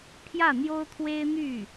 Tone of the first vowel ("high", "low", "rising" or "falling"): falling